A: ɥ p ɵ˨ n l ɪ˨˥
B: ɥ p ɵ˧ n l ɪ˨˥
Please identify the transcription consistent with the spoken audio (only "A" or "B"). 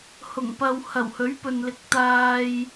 A